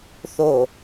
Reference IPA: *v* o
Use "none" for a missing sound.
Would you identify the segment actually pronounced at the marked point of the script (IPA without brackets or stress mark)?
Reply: θ